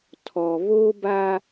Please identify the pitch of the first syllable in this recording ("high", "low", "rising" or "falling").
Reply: low